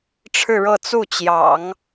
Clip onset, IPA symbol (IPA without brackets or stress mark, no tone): ʈ͡ʂʰ